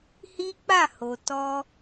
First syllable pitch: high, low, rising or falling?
high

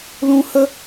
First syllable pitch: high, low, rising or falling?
high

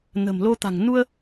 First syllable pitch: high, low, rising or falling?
low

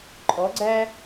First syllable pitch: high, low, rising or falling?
rising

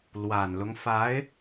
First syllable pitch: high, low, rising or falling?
low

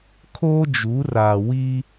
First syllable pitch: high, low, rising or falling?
high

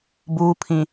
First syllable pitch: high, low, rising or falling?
low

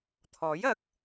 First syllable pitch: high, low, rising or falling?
rising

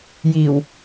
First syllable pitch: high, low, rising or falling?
low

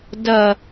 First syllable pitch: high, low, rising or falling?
low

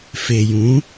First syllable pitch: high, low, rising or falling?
low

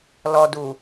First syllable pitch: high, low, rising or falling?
low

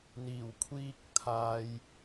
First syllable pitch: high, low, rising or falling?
low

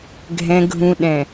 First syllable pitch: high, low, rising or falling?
low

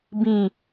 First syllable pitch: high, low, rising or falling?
falling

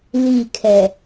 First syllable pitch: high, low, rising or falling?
falling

